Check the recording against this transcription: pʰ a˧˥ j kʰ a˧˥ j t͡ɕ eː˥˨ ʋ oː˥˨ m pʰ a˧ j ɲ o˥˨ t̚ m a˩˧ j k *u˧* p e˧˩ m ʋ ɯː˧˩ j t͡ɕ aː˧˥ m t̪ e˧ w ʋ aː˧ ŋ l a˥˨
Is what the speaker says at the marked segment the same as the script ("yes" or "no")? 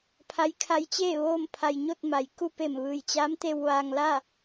yes